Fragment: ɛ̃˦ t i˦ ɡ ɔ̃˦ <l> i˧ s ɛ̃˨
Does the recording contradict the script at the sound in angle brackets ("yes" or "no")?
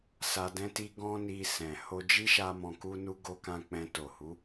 yes